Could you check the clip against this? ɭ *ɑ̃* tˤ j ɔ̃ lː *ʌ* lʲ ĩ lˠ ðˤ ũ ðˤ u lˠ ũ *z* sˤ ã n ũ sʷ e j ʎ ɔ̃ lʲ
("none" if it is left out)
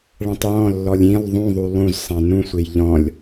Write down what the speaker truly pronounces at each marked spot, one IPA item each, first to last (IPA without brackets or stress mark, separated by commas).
ã, ɔ, z